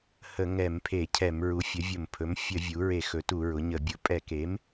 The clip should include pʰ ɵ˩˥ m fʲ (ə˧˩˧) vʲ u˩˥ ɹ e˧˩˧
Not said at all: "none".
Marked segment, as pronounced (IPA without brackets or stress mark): ə˧˩˧